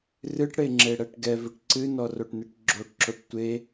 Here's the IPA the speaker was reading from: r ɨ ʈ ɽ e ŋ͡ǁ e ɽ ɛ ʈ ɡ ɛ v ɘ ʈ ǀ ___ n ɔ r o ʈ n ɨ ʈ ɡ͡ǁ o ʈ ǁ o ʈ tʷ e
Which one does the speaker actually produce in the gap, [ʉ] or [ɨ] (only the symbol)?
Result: ɨ